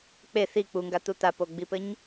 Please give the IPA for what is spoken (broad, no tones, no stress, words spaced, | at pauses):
k͡pe θi k͡puŋɡat̪u t̪apoɡ͡bipɘɲ